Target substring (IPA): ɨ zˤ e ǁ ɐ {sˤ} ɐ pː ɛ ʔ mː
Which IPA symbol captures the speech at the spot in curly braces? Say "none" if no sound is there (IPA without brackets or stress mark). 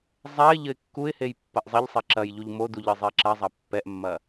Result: zˤ